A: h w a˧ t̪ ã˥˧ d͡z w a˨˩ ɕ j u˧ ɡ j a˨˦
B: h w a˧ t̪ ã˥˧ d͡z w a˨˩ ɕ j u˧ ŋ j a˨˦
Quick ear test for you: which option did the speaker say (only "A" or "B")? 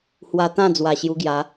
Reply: A